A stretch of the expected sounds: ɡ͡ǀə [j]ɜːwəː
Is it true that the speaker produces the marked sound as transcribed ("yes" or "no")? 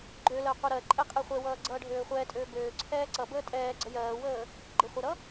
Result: yes